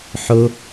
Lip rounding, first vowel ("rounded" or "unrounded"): rounded